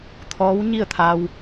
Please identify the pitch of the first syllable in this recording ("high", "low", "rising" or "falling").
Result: rising